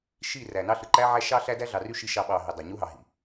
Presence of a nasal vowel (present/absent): absent